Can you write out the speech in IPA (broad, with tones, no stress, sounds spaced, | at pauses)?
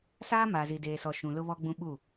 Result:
s aː˦ m aː˨ z i˨ d eː˨ s ɔ˨ ʃ ũ˨ l ʊ˦ β ɔ˦ ɡ͡b ũ˦ ɓ u˦˨